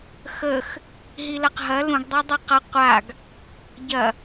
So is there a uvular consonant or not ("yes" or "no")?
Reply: yes